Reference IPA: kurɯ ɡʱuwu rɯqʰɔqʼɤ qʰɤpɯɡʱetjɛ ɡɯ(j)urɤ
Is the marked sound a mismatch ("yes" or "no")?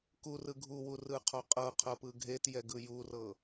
no